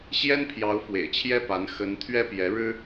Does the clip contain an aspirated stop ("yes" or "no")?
yes